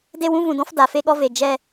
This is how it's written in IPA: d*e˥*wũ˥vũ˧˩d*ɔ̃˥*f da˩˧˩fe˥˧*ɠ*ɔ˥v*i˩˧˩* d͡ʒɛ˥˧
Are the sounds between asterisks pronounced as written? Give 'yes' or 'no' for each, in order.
no, yes, yes, no

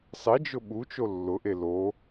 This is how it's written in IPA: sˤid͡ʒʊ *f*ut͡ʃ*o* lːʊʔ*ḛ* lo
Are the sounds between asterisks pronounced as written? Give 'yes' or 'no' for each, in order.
no, yes, no

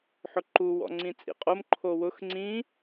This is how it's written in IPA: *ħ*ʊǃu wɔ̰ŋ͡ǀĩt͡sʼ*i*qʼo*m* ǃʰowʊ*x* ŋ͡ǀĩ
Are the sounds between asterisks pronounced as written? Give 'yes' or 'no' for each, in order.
yes, no, yes, yes

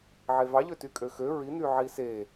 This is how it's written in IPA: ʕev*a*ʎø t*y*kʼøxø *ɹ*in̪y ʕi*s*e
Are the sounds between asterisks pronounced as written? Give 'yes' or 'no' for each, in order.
no, yes, yes, yes

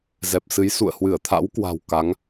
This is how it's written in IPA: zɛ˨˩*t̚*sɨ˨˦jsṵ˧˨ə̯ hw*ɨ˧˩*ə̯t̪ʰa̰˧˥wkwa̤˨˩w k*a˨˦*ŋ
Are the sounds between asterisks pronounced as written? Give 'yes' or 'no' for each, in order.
no, yes, yes

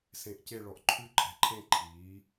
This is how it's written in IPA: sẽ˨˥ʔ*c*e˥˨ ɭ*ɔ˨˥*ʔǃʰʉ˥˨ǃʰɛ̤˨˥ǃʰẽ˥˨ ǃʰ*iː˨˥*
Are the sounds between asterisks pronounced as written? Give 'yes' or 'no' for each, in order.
yes, yes, yes

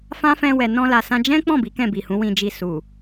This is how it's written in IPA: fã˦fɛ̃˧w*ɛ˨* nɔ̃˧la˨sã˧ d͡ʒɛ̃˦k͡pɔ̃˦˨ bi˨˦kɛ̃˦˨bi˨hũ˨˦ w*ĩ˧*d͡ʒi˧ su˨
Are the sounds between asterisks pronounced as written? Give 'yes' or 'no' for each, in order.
yes, yes

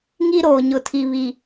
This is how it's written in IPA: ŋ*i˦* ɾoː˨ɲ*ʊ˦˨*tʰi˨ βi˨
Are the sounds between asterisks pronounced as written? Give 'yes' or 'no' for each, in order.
yes, no

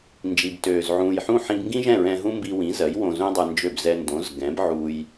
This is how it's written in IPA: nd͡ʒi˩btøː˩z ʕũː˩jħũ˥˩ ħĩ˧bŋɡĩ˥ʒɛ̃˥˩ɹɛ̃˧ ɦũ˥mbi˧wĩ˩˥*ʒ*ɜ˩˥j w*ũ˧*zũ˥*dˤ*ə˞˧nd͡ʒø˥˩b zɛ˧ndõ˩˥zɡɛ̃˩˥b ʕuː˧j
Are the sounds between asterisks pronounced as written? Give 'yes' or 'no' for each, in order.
no, no, yes

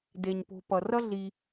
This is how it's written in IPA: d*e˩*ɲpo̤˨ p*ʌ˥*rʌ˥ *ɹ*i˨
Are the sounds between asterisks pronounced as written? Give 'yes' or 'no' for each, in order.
yes, no, no

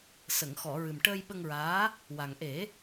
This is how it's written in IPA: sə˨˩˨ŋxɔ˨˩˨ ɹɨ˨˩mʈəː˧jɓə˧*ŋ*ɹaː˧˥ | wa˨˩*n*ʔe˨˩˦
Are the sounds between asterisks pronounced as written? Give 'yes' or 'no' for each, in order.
yes, no

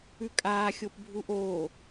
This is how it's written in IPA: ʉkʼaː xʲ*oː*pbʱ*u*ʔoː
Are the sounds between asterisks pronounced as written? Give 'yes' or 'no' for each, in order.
no, yes

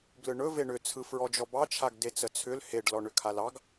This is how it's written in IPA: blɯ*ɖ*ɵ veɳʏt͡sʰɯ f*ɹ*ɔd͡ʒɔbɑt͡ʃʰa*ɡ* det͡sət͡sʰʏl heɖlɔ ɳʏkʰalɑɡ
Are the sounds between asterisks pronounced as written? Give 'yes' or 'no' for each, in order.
no, yes, yes

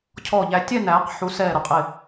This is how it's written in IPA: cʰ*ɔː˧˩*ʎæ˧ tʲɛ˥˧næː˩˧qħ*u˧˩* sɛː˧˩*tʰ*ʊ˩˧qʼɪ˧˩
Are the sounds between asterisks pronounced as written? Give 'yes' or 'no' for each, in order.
yes, no, no

